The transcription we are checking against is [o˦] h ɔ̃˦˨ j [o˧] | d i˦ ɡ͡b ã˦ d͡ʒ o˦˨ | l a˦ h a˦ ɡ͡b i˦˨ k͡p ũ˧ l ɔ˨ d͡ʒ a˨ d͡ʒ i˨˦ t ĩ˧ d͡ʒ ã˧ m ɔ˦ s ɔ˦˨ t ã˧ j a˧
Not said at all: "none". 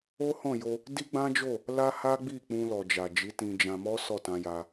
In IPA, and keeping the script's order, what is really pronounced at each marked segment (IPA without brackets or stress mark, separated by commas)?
o˦, o˧